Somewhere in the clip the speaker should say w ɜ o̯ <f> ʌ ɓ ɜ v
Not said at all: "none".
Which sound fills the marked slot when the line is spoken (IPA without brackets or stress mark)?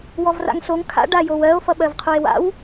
f